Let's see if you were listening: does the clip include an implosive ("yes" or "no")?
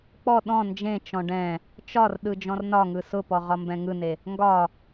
yes